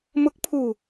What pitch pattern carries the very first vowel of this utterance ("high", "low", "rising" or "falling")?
rising